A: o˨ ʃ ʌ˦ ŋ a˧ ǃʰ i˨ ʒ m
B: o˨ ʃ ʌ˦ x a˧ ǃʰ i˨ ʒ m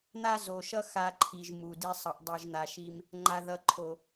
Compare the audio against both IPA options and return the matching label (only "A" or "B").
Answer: B